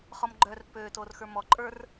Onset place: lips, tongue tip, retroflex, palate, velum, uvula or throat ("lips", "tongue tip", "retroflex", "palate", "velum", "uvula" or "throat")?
uvula